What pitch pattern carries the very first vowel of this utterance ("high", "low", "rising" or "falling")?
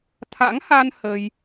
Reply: rising